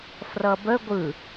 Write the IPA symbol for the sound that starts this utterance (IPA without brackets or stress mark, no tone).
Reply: f